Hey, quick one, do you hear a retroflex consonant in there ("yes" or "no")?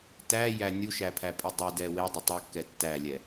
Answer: no